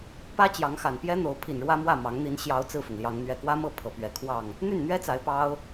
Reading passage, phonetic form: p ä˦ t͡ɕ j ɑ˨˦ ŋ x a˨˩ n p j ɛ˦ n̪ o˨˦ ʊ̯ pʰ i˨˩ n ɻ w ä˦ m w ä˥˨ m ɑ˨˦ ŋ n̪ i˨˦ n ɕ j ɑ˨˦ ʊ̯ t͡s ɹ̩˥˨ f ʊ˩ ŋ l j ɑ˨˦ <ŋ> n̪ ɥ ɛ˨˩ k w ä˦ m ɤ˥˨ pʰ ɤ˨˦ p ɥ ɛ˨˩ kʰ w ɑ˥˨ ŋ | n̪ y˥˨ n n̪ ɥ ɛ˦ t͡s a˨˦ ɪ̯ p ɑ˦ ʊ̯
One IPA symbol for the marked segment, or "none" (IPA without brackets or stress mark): ŋ